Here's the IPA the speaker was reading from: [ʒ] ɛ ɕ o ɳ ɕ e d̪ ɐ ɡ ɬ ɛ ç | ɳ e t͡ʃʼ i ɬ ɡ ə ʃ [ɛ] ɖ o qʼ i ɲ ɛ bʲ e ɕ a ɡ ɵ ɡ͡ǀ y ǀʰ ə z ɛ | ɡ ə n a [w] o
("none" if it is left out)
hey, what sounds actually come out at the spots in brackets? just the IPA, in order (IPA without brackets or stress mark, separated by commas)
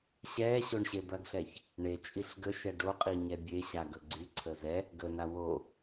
ɕ, ɛ, w